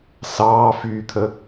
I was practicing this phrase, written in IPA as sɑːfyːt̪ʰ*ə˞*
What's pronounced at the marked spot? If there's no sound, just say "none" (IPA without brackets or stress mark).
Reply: ə